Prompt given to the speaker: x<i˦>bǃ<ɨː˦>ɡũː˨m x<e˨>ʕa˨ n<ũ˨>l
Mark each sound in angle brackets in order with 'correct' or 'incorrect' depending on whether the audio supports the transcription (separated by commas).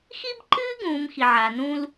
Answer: correct, correct, incorrect, incorrect